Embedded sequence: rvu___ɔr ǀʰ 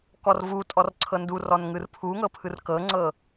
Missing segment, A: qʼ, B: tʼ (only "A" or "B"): B